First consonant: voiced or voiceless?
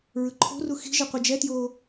voiced